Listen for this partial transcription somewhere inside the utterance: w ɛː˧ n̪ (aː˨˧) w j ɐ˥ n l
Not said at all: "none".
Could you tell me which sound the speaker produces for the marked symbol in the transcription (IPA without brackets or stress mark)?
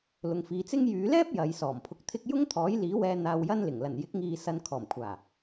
aː˧